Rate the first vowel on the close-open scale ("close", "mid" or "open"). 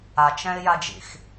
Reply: open